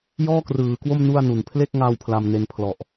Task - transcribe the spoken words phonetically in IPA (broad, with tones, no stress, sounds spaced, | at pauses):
j ɔː˥˩ k r ɯː˩˦ k w o˥˩ m n u˥˩ a̯ n u˨˩ n pʰ l e˥˩ k̚ ŋ a˧ w pʰ l a˧ m n e˧ n pʰ l ɔ˨˩ ʔ